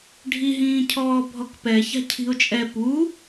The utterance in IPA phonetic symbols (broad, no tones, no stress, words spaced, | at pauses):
ɖʱiɦĩː cʰɔːbʱɔkpɛ ça̤cʰi̤ʊ̯t͡ʃʼɛ pu